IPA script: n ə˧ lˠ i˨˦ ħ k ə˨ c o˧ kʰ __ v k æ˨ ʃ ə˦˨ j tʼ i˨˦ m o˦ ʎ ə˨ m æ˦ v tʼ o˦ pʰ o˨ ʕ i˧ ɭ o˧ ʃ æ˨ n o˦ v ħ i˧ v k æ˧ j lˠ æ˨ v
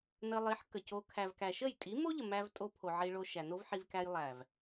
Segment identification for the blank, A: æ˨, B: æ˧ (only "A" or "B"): A